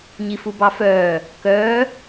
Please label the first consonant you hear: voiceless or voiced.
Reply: voiced